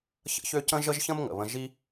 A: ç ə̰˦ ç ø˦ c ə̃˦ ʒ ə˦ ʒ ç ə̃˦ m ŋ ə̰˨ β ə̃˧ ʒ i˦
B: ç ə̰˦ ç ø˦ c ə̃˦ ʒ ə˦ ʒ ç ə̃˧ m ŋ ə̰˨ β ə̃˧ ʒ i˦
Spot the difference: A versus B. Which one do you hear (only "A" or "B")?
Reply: A